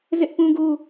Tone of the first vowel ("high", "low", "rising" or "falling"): high